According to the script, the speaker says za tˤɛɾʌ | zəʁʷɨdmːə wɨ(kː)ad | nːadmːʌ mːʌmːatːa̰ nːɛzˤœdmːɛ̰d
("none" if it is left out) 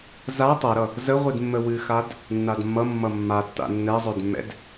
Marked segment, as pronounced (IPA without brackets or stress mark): x